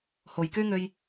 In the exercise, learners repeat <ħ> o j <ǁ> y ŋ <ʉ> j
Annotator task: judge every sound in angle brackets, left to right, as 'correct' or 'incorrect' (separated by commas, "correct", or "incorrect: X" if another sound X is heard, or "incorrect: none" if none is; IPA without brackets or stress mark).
incorrect: h, incorrect: k, incorrect: ø